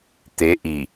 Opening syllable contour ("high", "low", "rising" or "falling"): rising